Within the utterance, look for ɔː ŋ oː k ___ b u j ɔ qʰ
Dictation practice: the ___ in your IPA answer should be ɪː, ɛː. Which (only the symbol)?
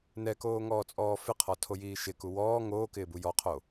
ɪː